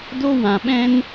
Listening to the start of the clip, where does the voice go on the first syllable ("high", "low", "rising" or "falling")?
high